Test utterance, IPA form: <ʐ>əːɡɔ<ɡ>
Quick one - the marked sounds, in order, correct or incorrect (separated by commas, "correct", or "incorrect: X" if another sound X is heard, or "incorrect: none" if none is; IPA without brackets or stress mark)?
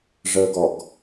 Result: correct, correct